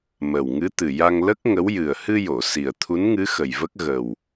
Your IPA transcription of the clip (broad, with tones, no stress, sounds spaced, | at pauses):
m ə˨˩ w ŋ ɨ˧˥ t̪ ɨ˨˩ j a˧ ŋ l ə˦˥ k̚ ŋ ə˧˥ w j ɨ˨˩ ə̯ h ɨ˧ j o˨˩˨ s i˨˩ ə̯ t̪ʰ u˧˥ n ŋ ɨ˧˥ x ə˨˩ j v ə˦˥ k̚ ɣ ə˨˩ w